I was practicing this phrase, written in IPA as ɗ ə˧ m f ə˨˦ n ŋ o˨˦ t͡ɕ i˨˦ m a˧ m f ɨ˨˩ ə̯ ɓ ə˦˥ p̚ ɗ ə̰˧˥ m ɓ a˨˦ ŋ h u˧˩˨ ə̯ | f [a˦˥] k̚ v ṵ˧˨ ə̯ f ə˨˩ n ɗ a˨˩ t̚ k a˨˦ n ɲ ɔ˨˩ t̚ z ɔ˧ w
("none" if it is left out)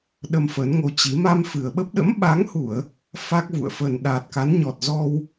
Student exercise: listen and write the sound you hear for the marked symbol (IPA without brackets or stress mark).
a˦˥